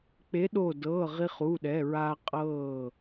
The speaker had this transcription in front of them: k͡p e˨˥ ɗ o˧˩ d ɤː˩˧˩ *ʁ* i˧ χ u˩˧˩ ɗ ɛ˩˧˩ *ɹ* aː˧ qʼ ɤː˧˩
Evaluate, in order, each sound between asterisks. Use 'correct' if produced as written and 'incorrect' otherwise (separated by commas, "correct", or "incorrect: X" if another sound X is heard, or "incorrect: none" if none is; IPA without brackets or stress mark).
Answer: correct, correct